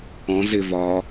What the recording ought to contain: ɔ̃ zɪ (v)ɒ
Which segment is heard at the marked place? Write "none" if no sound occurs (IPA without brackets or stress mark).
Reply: v